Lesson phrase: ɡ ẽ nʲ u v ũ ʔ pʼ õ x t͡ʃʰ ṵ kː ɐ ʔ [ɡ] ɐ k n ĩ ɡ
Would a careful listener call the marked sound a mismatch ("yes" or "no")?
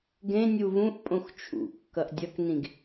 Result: yes